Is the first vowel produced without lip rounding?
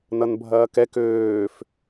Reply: yes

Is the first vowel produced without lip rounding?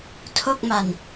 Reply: no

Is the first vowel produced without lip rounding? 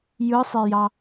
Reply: yes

